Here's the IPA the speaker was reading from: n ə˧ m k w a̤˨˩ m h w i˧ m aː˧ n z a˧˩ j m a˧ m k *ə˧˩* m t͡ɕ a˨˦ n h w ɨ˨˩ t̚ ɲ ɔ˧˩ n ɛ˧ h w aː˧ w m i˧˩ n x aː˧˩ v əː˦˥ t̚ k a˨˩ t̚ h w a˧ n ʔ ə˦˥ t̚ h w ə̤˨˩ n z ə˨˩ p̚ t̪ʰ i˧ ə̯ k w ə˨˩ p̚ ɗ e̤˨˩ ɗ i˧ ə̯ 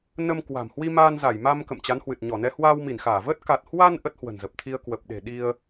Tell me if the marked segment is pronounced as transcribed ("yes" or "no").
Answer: no